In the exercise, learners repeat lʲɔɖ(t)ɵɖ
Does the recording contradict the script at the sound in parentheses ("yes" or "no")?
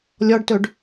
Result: no